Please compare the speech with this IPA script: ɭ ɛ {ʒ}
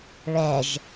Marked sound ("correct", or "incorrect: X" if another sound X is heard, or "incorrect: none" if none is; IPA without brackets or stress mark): correct